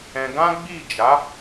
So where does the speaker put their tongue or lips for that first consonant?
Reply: velum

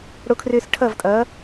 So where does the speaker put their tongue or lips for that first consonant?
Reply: retroflex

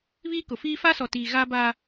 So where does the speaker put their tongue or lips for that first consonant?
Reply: lips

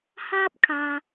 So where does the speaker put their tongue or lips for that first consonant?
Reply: throat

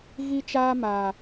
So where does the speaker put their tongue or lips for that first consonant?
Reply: velum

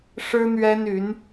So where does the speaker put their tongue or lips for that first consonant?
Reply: retroflex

